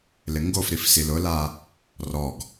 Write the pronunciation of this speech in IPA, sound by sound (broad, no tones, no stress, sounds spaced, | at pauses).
l ɪ ŋ ɡ o f ɾ i f s i l ʊ l a | r ɔ ɡ